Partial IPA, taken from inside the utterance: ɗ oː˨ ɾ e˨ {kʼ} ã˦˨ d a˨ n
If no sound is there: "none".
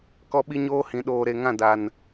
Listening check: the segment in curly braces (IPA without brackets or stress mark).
ŋ